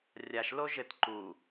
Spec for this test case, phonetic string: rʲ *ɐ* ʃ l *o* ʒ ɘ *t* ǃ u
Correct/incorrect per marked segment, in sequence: incorrect, correct, correct

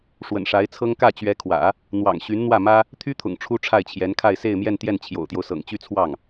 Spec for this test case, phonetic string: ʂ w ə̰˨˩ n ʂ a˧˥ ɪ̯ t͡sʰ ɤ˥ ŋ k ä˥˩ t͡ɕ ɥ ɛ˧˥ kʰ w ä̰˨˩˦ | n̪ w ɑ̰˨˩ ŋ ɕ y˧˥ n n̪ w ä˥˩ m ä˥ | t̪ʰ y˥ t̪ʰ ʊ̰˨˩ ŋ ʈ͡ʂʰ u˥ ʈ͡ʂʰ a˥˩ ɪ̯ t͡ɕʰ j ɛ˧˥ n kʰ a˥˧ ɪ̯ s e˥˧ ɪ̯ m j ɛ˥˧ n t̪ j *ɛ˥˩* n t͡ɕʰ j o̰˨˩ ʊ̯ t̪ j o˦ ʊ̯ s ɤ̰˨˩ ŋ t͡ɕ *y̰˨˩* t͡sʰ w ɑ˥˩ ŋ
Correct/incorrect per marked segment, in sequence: correct, incorrect

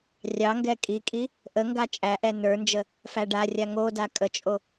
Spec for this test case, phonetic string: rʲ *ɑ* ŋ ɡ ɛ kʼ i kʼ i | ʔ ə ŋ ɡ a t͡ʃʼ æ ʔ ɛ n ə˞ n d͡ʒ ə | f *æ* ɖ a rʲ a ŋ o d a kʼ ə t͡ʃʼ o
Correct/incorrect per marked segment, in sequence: correct, correct

